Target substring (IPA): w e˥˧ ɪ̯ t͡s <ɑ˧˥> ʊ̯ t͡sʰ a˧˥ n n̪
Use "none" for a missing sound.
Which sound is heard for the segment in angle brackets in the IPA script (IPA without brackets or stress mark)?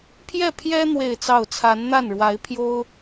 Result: ɑ˥˩